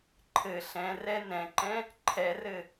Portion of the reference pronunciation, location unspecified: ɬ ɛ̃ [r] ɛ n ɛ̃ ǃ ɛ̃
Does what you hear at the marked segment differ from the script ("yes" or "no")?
no